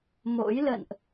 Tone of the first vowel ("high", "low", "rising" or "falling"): rising